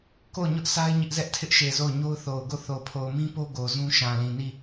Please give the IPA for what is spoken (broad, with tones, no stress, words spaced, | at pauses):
ko˦˨ʊ̯ɲʊ˦ʔsa˦ɪ̯ ɲɪ˦ʔzɛ˦ʔtʰɪ˦ʔʃe˨ zo˦˨ʊ̯ ɲo˦ʊ̯θo˨ʊ̯ɡo˦˨ θo˨pʰo˨ʊ̯mĩ˦po˦ ɡo˨zũ˦ʃã˨ lĩ˨ni˦˨